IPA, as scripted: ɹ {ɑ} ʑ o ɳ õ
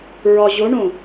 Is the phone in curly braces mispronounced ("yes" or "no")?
yes